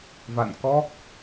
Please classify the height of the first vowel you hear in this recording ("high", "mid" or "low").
low